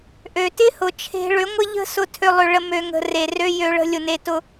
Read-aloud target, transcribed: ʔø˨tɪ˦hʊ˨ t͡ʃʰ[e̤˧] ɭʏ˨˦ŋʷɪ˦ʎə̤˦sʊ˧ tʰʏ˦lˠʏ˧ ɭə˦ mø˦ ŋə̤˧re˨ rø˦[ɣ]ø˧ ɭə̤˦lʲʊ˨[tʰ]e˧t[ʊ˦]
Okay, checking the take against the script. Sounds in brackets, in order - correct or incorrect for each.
correct, incorrect, incorrect, correct

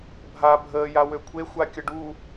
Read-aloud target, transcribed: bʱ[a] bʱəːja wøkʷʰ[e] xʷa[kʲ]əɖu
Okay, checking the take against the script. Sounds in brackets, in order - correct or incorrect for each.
correct, correct, correct

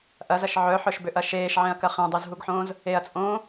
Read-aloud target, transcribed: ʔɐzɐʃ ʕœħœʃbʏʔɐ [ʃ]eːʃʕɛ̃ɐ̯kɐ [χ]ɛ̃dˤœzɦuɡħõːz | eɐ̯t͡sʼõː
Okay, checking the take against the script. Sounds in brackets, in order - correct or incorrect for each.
correct, correct

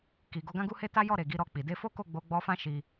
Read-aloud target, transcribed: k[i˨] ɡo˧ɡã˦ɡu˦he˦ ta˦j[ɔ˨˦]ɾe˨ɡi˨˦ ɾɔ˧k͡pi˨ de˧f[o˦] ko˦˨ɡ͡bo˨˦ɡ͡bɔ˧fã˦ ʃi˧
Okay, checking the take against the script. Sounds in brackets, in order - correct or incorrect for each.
correct, incorrect, correct

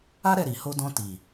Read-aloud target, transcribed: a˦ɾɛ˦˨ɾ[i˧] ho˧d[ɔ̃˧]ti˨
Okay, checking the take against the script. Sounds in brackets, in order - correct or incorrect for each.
incorrect, correct

